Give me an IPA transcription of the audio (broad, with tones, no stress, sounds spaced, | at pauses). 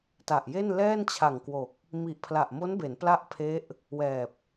t a˨˩ ʔ j e˥˩ n l ɛː˥˩ n t͡ɕʰ a˨˩ ŋ k w o˨˩ k̚ | m i˨˩ ʔ pʰ l a˨˩ ʔ m o˦˥ n b e˩˦ n p l a˥˩ ʔ pʰ e˦˥ ʔ | w ɛː˨˩ p̚